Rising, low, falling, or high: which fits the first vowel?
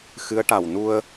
rising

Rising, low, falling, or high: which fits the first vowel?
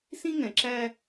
high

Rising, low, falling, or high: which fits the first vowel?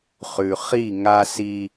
low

